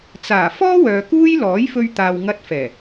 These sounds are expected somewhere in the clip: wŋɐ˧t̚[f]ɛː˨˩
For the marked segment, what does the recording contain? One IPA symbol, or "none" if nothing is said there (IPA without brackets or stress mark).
f